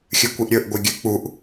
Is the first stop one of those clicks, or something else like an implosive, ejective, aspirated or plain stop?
plain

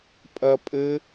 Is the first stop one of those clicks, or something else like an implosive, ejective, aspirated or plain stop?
ejective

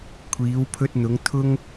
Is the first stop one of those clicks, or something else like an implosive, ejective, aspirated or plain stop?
aspirated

